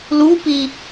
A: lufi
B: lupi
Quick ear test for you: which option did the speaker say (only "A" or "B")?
B